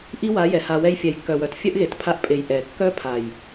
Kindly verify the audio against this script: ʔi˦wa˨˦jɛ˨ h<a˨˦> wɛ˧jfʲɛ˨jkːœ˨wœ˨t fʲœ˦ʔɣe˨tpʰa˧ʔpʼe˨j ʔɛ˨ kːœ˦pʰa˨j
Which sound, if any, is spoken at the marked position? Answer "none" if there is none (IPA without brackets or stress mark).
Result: a˧